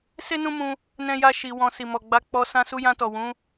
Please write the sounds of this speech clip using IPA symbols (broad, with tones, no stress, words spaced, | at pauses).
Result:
se˦nũ˦mũ˧ | nɛ̃˦ja˦ ʃi˧wɔ̃˧ si˨mɔ˨ɡ͡ba˧k͡pɔ˧ sã˧su˧jã˧tɔ˨ wũ˨˦